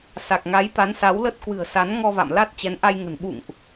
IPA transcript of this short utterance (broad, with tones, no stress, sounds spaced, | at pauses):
s a˨˩ k̚ ŋ a˨˦ j t̪ a˨˦ n s a˨˦ w l ə˦˥ t̚ k w ɨ̤˨˩ ə̯ s a˨˦ n ŋ ɔ˧ v a̰˧˨ m l a˦˥ t̚ t͡ɕ ɛ˨˦ n ʔ a˧ j ŋ ə̤˨˩ n ɓ ṵ˧˨ ŋ ʔ